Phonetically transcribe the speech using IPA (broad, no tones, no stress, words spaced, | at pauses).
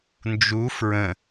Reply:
nd͡ʒu fɹə̃